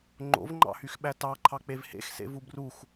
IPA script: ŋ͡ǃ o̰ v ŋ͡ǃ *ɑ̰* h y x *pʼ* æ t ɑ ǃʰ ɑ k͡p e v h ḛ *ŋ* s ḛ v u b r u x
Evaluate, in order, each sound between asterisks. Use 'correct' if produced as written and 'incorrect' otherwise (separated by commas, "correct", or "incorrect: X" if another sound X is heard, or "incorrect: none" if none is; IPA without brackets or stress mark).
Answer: correct, incorrect: ɓ, incorrect: x